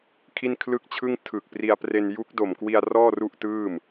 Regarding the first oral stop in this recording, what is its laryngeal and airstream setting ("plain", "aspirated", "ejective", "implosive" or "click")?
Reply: aspirated